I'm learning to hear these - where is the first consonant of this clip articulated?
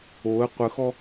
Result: uvula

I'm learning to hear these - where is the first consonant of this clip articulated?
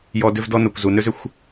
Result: palate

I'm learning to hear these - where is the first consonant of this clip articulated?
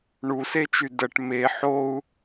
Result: retroflex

